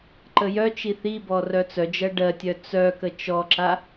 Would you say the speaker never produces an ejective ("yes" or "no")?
yes